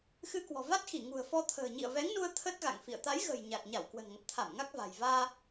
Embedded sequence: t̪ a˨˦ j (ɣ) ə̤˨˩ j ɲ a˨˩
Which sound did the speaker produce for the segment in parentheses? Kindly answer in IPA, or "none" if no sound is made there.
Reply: ɣ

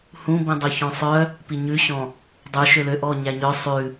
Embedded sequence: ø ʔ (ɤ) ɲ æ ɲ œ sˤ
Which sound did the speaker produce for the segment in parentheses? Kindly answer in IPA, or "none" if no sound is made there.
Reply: ɔ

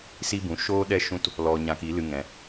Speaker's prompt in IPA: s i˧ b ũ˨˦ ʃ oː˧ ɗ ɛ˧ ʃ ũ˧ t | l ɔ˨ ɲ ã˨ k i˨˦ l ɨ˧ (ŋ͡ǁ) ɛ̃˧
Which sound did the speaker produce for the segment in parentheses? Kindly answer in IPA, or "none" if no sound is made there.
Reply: ŋ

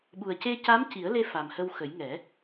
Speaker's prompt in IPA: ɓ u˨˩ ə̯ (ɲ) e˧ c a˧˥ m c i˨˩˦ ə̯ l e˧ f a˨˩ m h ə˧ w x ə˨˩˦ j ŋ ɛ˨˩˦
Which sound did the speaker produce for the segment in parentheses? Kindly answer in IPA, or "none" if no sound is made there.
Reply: c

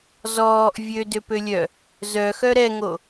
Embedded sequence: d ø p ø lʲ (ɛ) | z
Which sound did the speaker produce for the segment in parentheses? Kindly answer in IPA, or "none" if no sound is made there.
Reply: œ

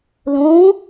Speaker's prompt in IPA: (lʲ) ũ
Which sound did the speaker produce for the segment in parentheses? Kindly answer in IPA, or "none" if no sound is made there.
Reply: l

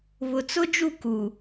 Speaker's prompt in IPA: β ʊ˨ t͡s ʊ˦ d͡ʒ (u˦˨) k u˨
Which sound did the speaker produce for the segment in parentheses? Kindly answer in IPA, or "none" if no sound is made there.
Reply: u˦˨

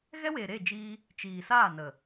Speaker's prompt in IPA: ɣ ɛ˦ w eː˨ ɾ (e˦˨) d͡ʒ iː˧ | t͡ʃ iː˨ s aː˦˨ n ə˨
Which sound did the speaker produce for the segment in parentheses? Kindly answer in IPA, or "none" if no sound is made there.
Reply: e˦˨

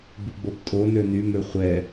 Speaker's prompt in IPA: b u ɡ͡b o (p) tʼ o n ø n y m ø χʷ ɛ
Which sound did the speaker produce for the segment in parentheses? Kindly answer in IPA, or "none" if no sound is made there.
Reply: p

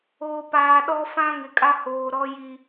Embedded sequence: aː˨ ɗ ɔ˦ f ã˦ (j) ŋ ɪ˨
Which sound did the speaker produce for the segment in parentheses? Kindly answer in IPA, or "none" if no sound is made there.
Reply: none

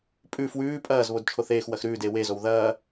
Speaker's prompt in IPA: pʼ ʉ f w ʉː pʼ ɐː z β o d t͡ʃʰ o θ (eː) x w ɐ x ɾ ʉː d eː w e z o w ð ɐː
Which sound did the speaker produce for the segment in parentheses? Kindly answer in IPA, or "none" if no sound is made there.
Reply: eː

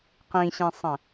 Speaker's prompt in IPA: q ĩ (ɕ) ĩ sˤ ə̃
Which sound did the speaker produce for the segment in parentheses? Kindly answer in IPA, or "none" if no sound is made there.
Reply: ɕ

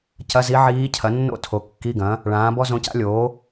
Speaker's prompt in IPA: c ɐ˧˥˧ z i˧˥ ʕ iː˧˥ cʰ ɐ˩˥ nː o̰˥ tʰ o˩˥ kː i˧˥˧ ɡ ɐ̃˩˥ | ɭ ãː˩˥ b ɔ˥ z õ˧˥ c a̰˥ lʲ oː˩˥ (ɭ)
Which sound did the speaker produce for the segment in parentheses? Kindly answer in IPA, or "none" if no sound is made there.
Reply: none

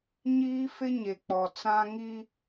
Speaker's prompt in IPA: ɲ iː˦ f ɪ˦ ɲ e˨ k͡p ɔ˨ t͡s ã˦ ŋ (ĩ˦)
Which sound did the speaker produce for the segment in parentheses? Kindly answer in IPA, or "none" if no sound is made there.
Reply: i˦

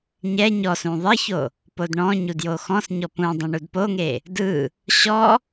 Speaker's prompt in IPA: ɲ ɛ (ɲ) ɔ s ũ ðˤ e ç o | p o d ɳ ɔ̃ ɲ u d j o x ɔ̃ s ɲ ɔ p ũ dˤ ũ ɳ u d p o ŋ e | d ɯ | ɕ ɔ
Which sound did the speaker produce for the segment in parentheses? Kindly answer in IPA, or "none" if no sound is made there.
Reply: ɲ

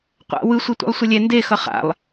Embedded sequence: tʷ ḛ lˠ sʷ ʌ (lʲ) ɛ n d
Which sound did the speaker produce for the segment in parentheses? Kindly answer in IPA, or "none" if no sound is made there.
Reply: lʲ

